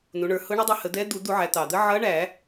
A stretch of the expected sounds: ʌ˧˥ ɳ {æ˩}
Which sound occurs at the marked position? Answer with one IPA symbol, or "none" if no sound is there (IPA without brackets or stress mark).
æ˧˩˧